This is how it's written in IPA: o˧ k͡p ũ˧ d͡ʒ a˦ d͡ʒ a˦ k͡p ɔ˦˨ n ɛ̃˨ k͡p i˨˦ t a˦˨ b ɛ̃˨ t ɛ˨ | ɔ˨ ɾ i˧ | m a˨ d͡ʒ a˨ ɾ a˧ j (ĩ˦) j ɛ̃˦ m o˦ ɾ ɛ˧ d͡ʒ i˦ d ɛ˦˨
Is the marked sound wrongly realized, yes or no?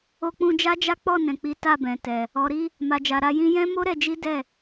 no